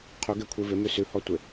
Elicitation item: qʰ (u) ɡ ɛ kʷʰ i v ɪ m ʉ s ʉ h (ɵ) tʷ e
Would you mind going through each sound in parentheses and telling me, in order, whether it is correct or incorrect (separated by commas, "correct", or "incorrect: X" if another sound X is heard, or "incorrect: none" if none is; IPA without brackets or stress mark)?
correct, incorrect: ɔ